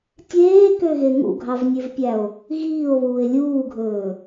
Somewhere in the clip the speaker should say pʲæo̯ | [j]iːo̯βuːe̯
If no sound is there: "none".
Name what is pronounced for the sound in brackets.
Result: ɣ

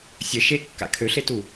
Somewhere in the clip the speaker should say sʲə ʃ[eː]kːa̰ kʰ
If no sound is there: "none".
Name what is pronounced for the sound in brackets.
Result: e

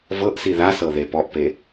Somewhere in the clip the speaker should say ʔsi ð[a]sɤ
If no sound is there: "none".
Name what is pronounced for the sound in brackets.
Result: a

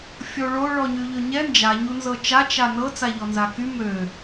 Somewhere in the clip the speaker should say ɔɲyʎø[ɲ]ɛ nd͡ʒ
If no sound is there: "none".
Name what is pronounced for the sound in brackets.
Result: ɲ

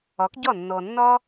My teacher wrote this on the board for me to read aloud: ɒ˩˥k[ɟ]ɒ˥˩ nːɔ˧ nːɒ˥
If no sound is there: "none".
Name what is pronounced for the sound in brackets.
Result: ɟ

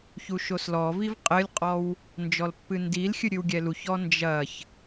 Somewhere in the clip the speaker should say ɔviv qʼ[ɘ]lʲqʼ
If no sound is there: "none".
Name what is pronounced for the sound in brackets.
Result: ɘ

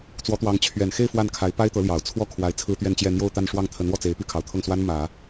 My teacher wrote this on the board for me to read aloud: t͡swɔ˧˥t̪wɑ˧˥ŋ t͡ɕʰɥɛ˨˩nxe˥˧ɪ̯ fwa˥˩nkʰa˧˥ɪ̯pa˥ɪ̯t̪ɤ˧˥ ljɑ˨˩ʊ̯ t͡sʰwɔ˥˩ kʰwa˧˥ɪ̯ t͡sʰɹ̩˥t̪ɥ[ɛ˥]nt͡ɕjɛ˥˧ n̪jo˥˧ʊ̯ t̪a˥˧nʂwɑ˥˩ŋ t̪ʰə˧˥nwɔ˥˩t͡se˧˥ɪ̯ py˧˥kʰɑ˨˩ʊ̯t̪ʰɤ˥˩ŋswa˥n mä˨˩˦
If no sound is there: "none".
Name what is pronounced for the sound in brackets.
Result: ɛ˥˧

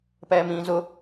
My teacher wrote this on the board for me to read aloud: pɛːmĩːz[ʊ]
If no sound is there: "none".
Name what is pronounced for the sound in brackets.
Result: ʊ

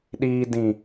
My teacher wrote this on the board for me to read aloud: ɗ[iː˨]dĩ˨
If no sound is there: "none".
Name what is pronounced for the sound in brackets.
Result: iː˨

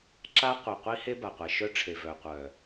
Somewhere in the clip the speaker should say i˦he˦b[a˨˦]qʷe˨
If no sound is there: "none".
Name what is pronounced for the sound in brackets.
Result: a˨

